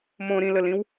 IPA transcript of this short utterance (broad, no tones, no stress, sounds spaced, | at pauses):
m õ ɾ ĩ l ə l ĩ w